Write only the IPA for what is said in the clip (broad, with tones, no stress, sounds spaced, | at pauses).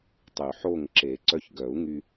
tˤ y˨˩˦ ħ oː˥˨ ŋ ǁ e˨˩˦ ǀ œ˦ ç ɡ œ˨˩˦ u̯ ŋ y˦